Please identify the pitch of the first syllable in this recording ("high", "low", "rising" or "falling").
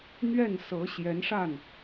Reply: falling